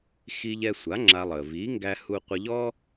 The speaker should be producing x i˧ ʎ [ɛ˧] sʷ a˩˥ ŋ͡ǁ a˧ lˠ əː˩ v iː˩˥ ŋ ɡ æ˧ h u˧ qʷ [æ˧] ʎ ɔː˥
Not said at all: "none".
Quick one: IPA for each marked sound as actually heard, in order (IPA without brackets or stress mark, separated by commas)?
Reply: ɛ˧, ə˧